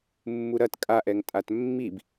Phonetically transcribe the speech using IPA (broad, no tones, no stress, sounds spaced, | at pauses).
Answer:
mː u ɾ ɐ t kʼ a ʔ ɛ ŋ tʼ a t mː i b